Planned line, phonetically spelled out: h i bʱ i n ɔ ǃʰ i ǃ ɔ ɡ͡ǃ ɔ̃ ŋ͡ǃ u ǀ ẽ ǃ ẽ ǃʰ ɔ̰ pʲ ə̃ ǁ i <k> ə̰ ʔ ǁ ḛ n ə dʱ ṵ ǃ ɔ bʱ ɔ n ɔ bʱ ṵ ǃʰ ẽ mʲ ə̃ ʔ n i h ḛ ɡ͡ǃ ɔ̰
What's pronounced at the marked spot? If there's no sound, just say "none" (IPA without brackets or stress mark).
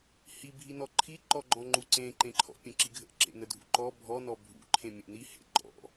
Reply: ɡʱ